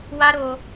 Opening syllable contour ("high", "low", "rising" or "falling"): high